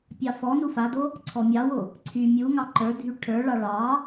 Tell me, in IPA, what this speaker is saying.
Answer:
pʲ ɑ f ɔ n u f a d o | ǀʰ ɔ mʲ ɑ w o | ǀʰ y mʲ u ŋ ɑ ǃ ə˞ dʱ y ʈʰ ə˞ ɭ ɑ ɭ ɑ

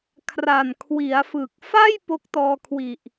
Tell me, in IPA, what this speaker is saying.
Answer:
kʰ r a˨˩ n kʰ w i˩˦ a̯ f ɯ˨˩ k̚ f a˥˩ j p o˦˥ k̚ t ɔː˧ kʰ w i˨˩ ʔ

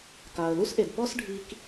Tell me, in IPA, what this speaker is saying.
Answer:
k aː˨ ə̯ l u˦ s ʔ e˨ d p ɔ˦ s ɖʱ i˧ k

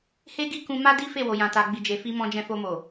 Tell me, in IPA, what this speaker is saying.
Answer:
h e˦ ɡ i˦ k ũ˧ m a˦ d i˦ f e˦˨ w o˨ j ã˨ t a˨ ɡ͡b i˨ d͡ʒ e˨ f i˧ m ɔ̃˧ d͡ʒ ɛ̃˧ f o˧ m o˨

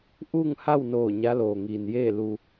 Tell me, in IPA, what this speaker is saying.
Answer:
ʔ uː˥˨ ŋ h a˥˨ w n oː˧˩ ɲ a˧˥ l oː˩ ŋ iː˩ n j eː˥˨ l u˧

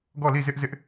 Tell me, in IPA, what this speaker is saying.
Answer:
ɡ ɔ˦˨ l i˦˨ z ɪ˦ ʔ z ɪ˦ ʔ

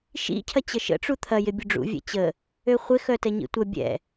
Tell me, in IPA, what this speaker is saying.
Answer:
ʃ ḭ cʰ ɐ t͡ɕ ə ʃ ə̰ ʈ͡ʂ u t̪ʰ ɐ j ɪ bʲ ʊ ɖ͡ʐ ṵ vʲ ɛ̰ t͡ɕ ə | ø χʷ ɪ x œ t ɛ ɲ ḭ tʷ ɐ bʲ ɛ̰

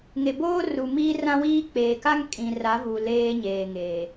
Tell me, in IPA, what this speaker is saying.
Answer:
ŋ e˨ b oː˦ r u˨ m iː˦ r ã˦ w iː˦ k͡p eː˨ k a˦ ŋ kʼ ĩ˨ r a˨˦ v u˨ l eː˦ ɲ eː˨ ŋ eː˨

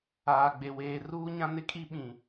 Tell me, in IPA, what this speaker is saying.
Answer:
aː˨ ɡ͡b e˨ w eː˨ r uː˦ ɲ ã˦ n ɪ˦ kʼ i˦ ɓ ĩ˨

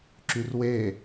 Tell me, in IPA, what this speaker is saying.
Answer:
ǁ y r w e

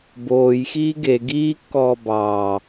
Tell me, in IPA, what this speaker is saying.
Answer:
b oː j x iː ɡ e ɡ iː kː ɔː b ɑː

